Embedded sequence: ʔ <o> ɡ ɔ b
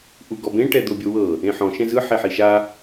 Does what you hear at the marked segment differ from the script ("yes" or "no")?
yes